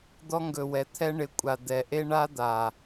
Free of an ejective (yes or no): no